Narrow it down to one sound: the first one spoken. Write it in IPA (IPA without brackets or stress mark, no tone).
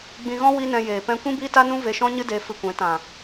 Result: ɡ͡b